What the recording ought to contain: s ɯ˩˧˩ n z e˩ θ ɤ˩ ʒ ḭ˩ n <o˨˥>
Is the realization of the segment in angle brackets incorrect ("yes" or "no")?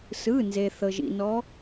yes